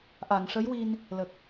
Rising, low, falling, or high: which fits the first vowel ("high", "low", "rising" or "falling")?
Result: low